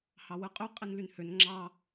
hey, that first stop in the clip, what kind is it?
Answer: ejective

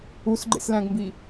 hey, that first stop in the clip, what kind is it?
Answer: click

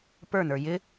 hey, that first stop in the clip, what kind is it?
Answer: plain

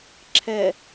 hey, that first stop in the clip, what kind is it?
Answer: click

